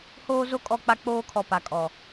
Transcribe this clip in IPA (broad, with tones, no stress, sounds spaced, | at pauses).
h oː˦ z o˦ kʼ ɔ˦˨ k͡p a˦ k͡p oː˦ kʰ ɔ˨ p a˨ kʼ ɔ˨